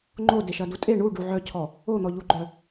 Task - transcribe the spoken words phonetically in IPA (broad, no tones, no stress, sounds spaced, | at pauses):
ŋ͡ǃ o d e ʃ ɐ d u tʼ e ɳ u ɖ u ʕ œ cʰ ɔ | o n̪ ɔ ʎ u ɡ͡ǃ œ